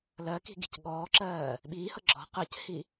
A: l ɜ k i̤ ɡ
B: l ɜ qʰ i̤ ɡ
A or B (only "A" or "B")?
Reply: A